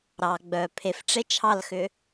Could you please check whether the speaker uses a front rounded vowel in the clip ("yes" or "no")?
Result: yes